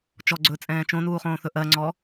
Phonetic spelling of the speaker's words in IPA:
t͡ʃ ɔ ɡ͡ǀ ɵː t͡sʼ ɛ̃ː t͡ʃ õ n uː χ õː θ ɵ ʔ ɜ ŋ͡ǀ ɔ

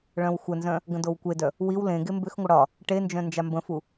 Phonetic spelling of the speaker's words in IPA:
ɭ œ̃ w xʷ ə n z œ̃ | ɡ ə̃ d o w kʷ e d œ | w i w l ẽ ɡ e m b ʏ x ŋʷ ə ɽ ɒ | ʈ e n d͡ʒ œ̃ n d͡ʒ a m b ə̃ f u

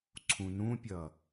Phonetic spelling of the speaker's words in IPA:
ǀʰ ũ n ũ pʲ ʌ

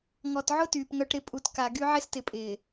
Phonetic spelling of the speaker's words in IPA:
ŋ ɔ˨ t ʕ ʊ˦ t yː˨ p ŋ œ˦ ʈ ɾ ɪ˦ pʼ u˨ t k a˨ ɡ y˦ ʕ ɪ˦ s t ɪ˨ pʼ ɪː˨

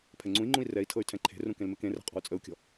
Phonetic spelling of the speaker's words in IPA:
pʰ ɛ ŋ͡ǀ ũ i̯ ŋ͡ǃ ũ i̯ r ɛ i̯ tʰ ɤ y̯ tʰ ɛ̃ ǃʰ e̤ r ũ k ẽ l m ɪ k ẽ r ɛ̤ qʼ ɔ̤ u̯ t͡sʼ ə u̯ kʲ ɔ̤

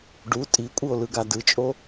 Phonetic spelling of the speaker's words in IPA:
ɖ u tʼ i kʷʼ ɯ o̯ l ɯ ɡ a d ɯ t͡ʃʼ o

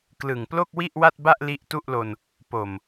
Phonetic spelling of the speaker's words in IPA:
k l ɯ˨˩ ŋ p l o˥˩ k̚ w i˥˩ ʔ w a˥˩ t̚ b a˥˩ ʔ l i˦˥ ʔ t u˥˩ ʔ l o˧ n | p o˨˩ m

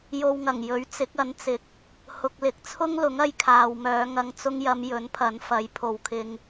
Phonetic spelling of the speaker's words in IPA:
j o˧ w ŋ ɐ˨˩ ŋ j ɵ˨˥ ɥ t͡s ɪ˨˥ k̚ ɐ˨˥ n t͡s ɪ˨ k̚ | h ʊ˨ k̚ l ɪ˨˥ k̚ t͡sʰ ʊ˥ ŋ l ʊ˨˥ ŋ ɐ˧ j kʰ aː˨ w m œː˨˧ ŋ ɐ˨ ŋ t͡s ʊ˧ ŋ j ɐ˨˧ m j ɵ˨˥ n pʰ ɐ˨˥ n f ɐ˨˥ j pʰ o˨ w kʰ ɪ˧ ŋ

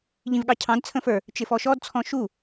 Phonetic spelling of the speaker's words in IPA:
ʎ ĩ v ɠ ɑ cʰ ɑ̃ d t͡sʰ ə̃ f ə˞ | t͡ʃ ɪ f ɔ ʃ ɔ d t͡sʰ ɔ̃ ʃ u

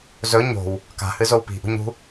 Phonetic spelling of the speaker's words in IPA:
z ɵ ɲ o̤ w | k a̤ h ɨ z o w p i̤ ʔ ṳ ɲ ṳ

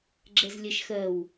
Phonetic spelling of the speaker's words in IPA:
ɡ͡ǁ ɛ z lʲ ɛ ʃ x ɜ w

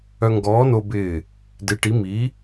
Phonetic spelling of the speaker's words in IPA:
œ˧ ŋ ɡ ɔː˨˥ n o˧ b ɪː˧˩ | d ɪ˨˥ ʈ i˨˥ m i˨˥

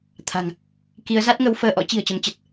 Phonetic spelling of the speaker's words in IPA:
t̪ʰ a̤˨˩ ŋ | k i˨˦ ə̯ z a˦˥ t̚ ŋ ə˨˦ w f əː˧ ʔ ɔ̰˧˥ t͡ɕ i̤˨˩ ə̯ t͡ɕ ə˨˦ m t͡ɕ ə˨˩ t̚

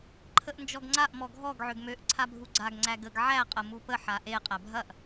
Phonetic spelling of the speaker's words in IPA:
ǃʰ ə ʔ n d͡ʒ ɔ ɡ ŋ͡ǀ a ʔ m ɔ ɡʱ ɔ ɡ ʕ ø ɡ m ø ʔ ǀʰ a bʱ u ɡ͡ǀ a ɡ ŋ͡ǀ æ ɡ ə ɡ ʕ æ qʼ ə m u p ə ħ a ʔ e qʼ æ bʱ ɐ ʔ

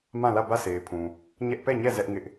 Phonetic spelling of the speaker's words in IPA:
m ã˦˨ l ä˦˨ b ä˦˨ sʰ e˨ ɪ̯ pʰ ũ˨ | ɲ ɛ˦ ʔ p ɛ˦˨ ɲ ɛ˦˨ z ɛ˦ ʔ ŋ ɪ˦ ʔ

